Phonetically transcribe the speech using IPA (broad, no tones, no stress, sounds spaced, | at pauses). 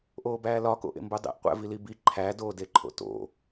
ʔ oː b æː l ɒ k o̰ ʔ ḛ m b u dˤ ḛ ʔ qʷ æ̰ v i l i b i ǃʰ æ d oː d e ǃʰ o̰ t o̰